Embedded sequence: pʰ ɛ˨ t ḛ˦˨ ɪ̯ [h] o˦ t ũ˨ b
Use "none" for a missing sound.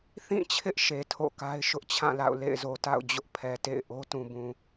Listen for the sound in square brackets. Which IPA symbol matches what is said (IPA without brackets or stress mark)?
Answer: ʔ